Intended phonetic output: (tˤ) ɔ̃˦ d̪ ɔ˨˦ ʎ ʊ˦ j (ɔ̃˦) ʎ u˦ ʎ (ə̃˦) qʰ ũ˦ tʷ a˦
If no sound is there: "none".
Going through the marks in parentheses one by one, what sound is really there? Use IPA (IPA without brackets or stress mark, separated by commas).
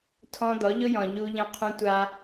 tʰ, ɔ̃˨, ə̃˦